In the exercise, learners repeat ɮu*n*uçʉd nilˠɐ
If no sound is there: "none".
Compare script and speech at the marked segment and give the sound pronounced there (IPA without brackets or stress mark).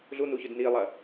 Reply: n